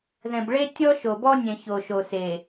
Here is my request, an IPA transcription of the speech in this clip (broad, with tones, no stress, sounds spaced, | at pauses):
ð ɛ̃˨ b ɭ e˦ tʲ ɔ˦ ʃ o˨ b ɔ˦ nʲ ɛ̃˨ ç o˨ ʃ o˨ s e˨